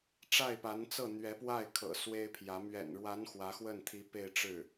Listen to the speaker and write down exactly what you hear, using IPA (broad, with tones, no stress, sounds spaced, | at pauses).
ʈ͡ʂ a˥˩ ɪ̯ p a˧˥ n t͡s ɤ˥˩ n̪ ɥ ɛ˧˥ p w a˥˩ ɪ̯ kʰ ɤ̰˨˩ s w e˥ ɪ̯ pʰ j ä˧˥ m ɥ ɛ̰˨˩ n ɻ w a˧˥ n x w ä˧˥ x w ə˥˩ n t̪ʰ i˧˥ p e˥˧ ɪ̯ ʈ͡ʂ ɻ̩˥˩